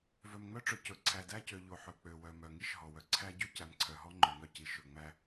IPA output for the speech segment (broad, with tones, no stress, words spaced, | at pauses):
vœ˨mŋ͡mœ˦ʈ͡ʂɵ˨ cɵ˨ ǀʰæ˨dæ˦cø˨ ʎo˨ ħɵ˨k͡pø˨ wœ˨mœ˨ ŋi˦ʃɦɔ˨wœ˨ ǀʰæ˦ ɟy˦cæ˨mǀʰœ˨ɦɔ˦ ŋ͡ǃɵ˨ŋœ˦ci˨ ʃɵ˨ŋ͡mæ˦